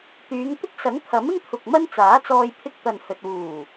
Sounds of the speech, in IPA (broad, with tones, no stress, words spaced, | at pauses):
t̪yː˨˧ŋt̪ɪ˥k̚sɐ˨˥ŋ t̪ʰɐ˨˥mɪ˥ŋt̪ʰʊ˨k̚ mɐ˥nt͡saː˨˥t͡sɔː˧j pʰɪ˧k̚t̪ɐ˨nhɵ˨t̚wuː˨˩